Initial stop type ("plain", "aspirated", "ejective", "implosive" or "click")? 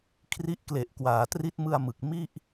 aspirated